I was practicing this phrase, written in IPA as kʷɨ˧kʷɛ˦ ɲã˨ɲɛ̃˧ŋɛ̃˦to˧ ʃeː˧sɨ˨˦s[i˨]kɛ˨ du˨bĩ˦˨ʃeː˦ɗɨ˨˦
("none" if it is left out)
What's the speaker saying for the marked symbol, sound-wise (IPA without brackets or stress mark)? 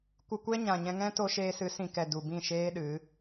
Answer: ĩ˨